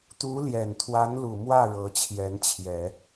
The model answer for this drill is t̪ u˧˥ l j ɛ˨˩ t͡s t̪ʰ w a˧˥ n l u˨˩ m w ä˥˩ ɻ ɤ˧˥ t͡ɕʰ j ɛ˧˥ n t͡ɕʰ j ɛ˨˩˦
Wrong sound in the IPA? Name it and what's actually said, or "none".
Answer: t͡s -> n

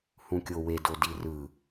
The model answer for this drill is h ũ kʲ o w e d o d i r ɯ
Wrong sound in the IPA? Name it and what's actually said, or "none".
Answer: none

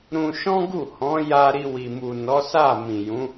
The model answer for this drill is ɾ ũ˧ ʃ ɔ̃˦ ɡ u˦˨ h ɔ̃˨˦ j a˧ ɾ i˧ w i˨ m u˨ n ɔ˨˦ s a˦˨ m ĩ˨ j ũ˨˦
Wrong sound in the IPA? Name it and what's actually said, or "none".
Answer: none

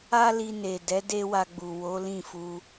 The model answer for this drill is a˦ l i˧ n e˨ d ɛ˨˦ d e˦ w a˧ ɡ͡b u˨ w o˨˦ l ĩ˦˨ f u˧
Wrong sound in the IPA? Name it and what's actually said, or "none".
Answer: none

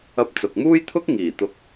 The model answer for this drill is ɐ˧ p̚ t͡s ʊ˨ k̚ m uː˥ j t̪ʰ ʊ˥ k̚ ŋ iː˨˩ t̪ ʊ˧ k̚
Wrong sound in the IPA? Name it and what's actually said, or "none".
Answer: none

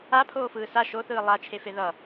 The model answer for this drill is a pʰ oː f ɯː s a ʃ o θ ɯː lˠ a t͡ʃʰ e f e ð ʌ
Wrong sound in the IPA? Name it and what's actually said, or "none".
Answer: none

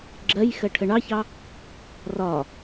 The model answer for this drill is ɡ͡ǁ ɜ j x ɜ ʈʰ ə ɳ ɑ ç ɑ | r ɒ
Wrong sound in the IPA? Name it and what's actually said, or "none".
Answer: none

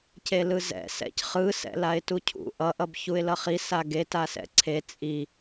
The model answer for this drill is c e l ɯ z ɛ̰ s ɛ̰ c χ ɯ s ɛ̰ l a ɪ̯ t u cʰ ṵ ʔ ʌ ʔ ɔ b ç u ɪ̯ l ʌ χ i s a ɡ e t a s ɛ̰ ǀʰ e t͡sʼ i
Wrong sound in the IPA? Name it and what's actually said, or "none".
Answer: ɔ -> ʌ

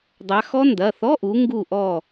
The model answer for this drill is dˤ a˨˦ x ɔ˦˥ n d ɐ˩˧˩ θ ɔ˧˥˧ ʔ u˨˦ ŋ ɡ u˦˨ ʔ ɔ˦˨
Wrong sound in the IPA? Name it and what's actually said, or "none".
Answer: none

